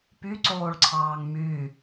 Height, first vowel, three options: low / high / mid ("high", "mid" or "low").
high